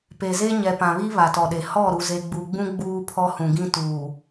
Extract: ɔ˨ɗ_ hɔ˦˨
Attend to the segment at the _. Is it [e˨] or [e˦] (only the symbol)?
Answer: e˨